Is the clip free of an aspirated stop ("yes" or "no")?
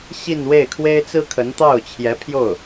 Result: no